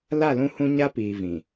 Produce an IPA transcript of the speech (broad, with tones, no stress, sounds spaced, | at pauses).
l a˦˨ l ũ˦ h ũ˦ ɲ a˦ p iː˨ v ĩ˨